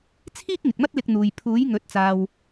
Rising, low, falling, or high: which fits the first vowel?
high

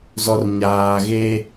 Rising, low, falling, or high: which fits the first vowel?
low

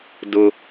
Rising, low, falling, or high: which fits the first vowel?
high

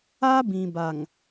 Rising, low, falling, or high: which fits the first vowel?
high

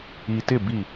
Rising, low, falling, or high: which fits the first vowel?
low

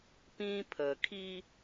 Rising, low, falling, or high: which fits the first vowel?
high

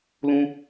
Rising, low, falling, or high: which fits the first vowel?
high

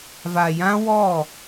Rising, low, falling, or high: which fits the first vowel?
low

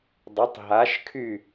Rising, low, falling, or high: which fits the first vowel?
rising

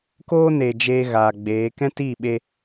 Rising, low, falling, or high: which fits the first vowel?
high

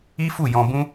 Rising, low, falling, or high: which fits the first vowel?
high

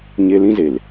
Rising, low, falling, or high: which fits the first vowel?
high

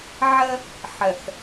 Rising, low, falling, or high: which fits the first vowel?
high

